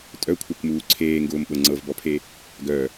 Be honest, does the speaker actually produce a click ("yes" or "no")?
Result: yes